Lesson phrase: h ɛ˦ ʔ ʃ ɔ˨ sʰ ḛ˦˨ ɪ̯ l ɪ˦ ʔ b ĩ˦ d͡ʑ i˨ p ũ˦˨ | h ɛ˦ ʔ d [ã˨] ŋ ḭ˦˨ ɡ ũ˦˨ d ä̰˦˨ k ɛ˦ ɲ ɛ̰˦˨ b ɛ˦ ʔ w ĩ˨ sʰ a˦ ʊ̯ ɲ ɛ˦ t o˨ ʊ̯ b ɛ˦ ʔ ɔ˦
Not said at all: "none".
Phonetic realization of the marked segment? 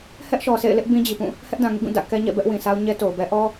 ã˨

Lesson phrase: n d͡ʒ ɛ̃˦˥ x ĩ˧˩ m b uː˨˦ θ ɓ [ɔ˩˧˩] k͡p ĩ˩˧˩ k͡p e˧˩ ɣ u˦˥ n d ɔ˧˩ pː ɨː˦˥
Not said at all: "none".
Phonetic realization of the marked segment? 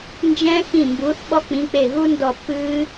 ɔ˦˥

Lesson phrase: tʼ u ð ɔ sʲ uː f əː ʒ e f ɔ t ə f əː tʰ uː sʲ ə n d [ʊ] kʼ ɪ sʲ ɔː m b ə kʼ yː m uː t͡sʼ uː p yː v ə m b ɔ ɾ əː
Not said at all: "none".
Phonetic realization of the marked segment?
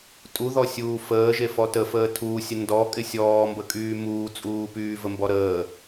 ɔ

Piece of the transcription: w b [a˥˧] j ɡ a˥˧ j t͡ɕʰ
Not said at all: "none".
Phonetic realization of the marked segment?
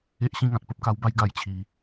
a˥˧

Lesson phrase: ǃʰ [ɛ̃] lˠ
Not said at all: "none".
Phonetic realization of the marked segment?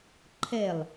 ɛ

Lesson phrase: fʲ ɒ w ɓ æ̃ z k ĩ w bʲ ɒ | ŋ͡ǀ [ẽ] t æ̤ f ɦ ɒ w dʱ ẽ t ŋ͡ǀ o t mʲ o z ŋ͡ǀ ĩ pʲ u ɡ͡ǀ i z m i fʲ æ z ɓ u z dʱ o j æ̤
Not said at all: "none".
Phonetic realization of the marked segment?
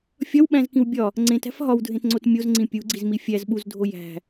ẽ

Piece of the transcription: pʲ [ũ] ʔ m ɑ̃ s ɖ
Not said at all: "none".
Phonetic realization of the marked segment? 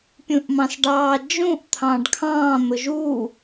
ũ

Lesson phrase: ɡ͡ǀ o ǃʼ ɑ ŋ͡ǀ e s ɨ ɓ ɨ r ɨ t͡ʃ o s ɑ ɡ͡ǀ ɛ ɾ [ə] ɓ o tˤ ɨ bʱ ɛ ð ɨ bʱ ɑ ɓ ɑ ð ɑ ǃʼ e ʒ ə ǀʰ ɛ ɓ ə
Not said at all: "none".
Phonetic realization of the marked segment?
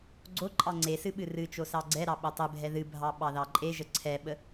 ɑ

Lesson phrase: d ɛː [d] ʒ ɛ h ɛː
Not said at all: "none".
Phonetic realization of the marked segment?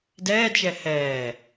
d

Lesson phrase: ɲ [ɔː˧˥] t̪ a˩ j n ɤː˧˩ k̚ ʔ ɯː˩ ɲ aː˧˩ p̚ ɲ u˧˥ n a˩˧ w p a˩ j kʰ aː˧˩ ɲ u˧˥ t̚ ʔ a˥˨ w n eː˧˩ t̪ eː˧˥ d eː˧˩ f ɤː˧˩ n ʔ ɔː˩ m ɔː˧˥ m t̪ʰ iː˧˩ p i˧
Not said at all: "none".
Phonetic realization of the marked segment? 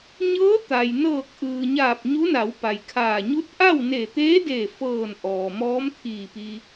ɤː˧˥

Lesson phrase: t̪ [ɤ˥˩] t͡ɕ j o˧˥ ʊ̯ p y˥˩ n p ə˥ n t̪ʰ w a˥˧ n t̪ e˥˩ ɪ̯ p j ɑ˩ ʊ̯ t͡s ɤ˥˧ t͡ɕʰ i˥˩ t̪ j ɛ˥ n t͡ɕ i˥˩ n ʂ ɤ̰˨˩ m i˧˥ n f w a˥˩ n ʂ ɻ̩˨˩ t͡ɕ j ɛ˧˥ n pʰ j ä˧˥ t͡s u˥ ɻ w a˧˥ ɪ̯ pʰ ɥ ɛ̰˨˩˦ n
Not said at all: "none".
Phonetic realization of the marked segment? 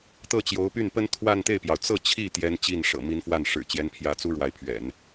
ɤ˥˩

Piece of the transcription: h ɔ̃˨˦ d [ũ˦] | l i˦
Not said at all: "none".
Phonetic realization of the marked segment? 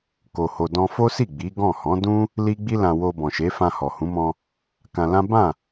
ũ˦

